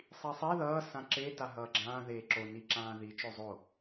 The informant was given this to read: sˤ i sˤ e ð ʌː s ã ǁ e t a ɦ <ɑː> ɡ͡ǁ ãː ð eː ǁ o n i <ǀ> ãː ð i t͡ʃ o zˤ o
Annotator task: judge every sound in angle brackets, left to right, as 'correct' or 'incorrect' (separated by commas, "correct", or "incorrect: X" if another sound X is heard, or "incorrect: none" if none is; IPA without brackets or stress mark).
incorrect: ʌː, incorrect: ǁ